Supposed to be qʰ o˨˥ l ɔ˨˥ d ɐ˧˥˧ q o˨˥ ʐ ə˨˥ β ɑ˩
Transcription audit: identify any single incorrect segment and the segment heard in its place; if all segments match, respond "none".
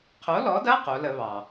ʐ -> l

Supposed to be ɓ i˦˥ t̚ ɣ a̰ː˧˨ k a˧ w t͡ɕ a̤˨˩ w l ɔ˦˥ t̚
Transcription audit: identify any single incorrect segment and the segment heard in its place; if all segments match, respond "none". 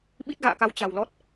none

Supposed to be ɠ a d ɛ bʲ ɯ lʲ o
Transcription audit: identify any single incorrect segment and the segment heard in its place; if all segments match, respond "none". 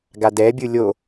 ɠ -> ɡ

